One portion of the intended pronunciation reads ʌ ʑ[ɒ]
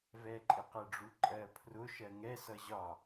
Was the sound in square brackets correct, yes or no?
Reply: yes